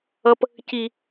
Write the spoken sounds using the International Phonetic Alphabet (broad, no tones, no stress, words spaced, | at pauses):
ʌp | ci